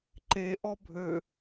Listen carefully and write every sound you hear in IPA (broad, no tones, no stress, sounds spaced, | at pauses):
ǃ e ʔ ɔ bʱ ø